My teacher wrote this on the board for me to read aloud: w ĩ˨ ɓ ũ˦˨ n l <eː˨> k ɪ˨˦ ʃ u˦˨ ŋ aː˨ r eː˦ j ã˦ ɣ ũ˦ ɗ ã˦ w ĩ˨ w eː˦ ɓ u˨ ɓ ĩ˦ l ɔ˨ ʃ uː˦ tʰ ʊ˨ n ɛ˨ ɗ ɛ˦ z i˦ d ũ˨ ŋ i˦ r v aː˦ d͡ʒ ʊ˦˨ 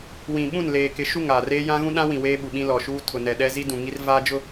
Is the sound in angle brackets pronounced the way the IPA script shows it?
yes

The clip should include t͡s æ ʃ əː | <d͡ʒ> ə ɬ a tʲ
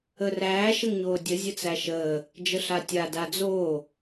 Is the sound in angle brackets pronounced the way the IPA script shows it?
yes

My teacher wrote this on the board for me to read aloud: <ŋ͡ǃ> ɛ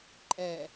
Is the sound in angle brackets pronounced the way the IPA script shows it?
no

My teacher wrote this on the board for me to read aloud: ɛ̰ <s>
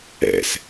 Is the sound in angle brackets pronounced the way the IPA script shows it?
yes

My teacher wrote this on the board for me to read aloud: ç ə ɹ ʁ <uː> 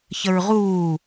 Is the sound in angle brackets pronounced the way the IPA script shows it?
yes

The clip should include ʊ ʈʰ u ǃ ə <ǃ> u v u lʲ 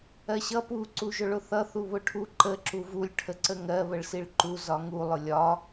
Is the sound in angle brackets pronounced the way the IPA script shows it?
no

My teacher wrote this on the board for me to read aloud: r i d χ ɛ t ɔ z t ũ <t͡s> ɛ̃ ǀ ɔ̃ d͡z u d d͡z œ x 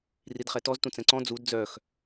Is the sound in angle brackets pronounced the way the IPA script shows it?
yes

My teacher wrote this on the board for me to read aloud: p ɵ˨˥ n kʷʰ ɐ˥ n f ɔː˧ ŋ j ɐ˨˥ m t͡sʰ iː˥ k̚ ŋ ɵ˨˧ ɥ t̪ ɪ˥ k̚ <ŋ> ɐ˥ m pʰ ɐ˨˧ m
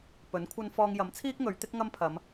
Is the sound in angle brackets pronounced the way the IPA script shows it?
yes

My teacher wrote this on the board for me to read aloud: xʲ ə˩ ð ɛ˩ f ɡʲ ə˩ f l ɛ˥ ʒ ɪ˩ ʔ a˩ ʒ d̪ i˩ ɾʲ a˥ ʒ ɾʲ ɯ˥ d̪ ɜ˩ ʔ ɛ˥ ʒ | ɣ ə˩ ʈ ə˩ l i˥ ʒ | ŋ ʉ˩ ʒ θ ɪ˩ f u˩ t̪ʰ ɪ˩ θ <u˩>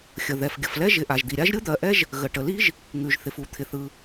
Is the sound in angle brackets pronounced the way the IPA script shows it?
no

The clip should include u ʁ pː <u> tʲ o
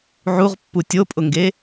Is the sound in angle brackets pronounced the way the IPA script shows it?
yes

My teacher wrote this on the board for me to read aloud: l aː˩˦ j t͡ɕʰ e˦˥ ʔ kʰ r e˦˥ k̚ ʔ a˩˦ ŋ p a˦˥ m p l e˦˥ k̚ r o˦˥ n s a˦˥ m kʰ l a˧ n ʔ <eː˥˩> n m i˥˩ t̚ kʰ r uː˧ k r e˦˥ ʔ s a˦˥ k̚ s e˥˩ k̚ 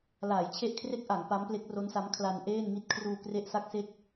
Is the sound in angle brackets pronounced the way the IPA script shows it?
yes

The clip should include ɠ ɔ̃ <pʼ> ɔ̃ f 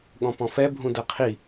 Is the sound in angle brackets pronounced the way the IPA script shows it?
no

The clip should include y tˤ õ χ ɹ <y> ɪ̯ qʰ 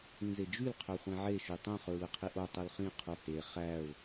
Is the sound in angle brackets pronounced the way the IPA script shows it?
no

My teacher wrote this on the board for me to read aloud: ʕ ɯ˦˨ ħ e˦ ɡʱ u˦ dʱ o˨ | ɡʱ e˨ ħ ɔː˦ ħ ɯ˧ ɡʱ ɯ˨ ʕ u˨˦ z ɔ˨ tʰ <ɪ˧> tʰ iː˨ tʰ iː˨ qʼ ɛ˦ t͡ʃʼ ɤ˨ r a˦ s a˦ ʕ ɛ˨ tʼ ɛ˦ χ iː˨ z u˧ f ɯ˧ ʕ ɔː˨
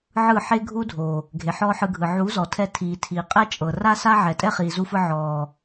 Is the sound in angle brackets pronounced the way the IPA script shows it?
no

